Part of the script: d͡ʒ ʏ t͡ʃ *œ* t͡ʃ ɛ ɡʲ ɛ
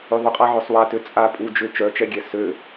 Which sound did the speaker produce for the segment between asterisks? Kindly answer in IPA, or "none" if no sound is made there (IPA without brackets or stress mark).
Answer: œ